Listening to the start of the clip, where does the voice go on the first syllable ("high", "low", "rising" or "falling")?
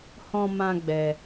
high